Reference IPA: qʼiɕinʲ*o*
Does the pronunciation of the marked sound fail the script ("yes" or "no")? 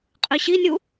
yes